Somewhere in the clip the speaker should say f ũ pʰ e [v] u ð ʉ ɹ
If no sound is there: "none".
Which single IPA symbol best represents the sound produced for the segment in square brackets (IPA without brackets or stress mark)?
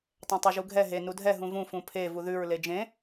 v